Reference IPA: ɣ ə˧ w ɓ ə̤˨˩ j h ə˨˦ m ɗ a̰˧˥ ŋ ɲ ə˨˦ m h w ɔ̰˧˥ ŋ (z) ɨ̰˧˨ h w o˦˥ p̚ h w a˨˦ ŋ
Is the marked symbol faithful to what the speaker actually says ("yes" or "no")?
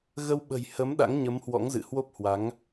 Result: yes